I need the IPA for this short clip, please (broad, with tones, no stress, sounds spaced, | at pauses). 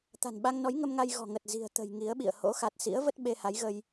t̪ a̤˨˩ n ɓ a˧ ŋ n ɔ˨˦ j ŋ ə˧ m ŋ a˧ j ɣ ɔ̤˨˩ ŋ ə˨˩ t̚ z i̤˨˩ ə̯ t̪ ə̤˨˩ j ŋ i˨˦ ə̯ ɓ ḭ˧˨ ə̯ h o̰˧˥ x a˨˩ t̚ s ḭ˧˥ ə̯ v ə˦˥ t̚ ɓ e˧ h a˨˦ j ɣ ə˧ j